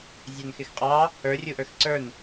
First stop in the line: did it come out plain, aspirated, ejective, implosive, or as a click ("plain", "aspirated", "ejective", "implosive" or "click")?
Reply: ejective